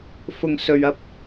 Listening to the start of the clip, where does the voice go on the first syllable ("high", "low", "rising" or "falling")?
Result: low